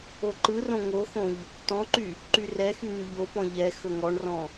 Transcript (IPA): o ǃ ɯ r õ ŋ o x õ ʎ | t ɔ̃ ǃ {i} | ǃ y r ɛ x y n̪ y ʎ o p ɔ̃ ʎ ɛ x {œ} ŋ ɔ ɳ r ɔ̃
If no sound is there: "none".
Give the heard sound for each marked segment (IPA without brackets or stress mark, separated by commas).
y, ɵ